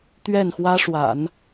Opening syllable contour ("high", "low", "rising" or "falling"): falling